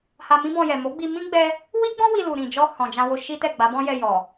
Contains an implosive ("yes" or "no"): no